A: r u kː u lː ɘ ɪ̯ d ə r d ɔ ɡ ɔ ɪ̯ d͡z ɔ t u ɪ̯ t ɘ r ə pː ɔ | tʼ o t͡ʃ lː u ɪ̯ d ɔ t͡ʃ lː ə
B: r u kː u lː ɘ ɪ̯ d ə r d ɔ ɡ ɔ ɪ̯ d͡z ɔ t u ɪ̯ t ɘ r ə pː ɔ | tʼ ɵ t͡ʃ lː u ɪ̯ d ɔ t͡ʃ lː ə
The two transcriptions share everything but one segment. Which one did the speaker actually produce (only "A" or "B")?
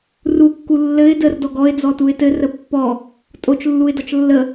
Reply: A